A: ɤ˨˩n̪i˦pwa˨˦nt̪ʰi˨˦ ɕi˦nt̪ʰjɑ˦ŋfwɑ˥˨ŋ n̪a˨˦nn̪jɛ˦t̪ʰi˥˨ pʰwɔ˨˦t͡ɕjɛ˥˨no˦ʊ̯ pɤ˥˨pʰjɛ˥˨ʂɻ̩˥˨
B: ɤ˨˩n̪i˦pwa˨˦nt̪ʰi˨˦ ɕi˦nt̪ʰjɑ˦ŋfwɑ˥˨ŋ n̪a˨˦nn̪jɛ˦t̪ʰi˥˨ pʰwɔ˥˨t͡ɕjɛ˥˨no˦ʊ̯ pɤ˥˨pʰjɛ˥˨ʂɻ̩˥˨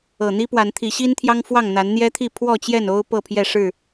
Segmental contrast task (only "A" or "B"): B